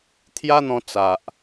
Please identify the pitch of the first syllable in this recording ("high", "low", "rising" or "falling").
high